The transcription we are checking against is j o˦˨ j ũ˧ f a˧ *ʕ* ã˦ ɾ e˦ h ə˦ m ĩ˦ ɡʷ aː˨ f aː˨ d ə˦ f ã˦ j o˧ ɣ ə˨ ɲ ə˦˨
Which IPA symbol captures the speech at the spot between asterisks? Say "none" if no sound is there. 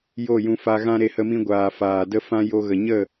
ɣ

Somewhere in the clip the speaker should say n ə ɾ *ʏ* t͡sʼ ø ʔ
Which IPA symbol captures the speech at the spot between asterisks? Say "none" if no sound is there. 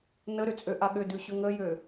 ʏ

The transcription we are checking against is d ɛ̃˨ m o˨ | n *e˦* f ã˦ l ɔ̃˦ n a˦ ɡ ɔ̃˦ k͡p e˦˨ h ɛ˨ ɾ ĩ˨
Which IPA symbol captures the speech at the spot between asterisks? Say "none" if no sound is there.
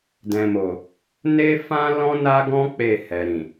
e˦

